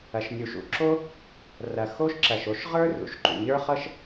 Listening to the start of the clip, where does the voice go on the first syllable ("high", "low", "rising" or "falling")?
low